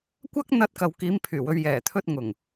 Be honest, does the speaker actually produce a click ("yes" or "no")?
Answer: no